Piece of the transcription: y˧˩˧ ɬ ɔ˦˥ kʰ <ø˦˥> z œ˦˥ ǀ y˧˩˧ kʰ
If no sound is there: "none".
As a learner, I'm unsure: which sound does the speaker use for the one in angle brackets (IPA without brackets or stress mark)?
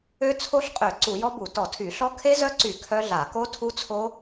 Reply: e˦˥